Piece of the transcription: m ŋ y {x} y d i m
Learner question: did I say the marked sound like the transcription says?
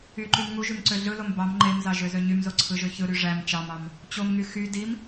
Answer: yes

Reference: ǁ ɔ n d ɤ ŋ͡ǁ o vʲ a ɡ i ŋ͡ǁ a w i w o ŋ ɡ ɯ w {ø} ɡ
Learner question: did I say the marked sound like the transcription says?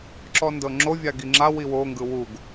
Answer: no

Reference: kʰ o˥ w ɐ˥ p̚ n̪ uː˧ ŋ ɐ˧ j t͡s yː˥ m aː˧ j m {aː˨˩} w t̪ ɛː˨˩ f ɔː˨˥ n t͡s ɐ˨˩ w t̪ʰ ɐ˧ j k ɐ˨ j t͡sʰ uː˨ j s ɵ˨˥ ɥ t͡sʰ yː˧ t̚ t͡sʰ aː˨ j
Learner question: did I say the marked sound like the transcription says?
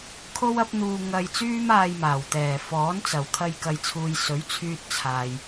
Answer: yes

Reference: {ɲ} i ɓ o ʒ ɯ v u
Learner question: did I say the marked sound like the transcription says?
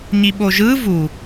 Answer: yes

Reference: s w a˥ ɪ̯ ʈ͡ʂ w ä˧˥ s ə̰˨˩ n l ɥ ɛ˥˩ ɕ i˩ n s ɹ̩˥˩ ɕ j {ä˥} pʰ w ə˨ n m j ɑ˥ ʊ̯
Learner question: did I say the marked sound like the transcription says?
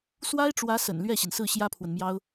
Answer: yes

